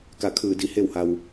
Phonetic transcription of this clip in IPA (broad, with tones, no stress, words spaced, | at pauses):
ka˧˩kʰɯː˧˩ di˧˩ he˥˨wha˧w